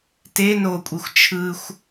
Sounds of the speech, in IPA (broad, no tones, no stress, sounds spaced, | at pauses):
t e n o kʷʼ e xʷ t͡ʃʰ ɯ xʷ